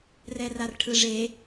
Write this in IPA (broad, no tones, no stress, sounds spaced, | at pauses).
r ɛ r a r ʈʰ ɯ ʐ e